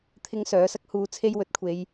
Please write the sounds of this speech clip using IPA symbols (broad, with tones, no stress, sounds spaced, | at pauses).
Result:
t̪ʰ ɪ˥ ŋ s œː˨˥ s ɐ˥ k̚ h uː˧ t͡sʰ e˥ j w ɵ˨˥ t̚ kʷʰ e˨˧ j